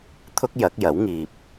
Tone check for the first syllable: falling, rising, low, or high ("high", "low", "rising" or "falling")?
high